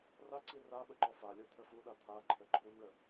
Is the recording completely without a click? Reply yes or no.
no